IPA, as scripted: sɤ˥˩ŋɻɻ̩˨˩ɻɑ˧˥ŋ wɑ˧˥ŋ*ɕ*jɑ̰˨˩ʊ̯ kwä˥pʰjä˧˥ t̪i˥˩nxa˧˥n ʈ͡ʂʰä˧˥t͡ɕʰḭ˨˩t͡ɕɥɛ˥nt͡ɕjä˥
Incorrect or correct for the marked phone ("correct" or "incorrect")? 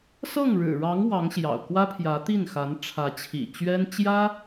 correct